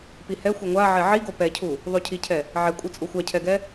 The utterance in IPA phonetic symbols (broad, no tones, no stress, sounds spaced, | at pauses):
p i h ɛ xʷ e ŋʷ a ʕ ɛ ʕ i ɡ o p ɛ cʰ u | ðˤ u cʰ i cʰ ɛ | ʕ ɛ kʷʼ ɯ t͡sʼ u xʷ a cʰ ɛ ɡ ɛ